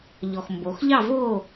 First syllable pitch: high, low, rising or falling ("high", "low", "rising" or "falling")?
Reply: low